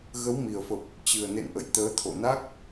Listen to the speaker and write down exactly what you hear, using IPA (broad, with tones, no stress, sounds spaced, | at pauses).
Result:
ɣ ə˨˦ w m i˨˩ ə̯ f ə˨˩ p̚ | t͡ɕ ɨ˨˩ ə̯ n ḛ˧˨ n ʔ ə̰˧˨ j t̪ əː˨˦ t̪ʰ o̰˧˨ n a˦˥ k̚